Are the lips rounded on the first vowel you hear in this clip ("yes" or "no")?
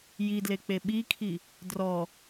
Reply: no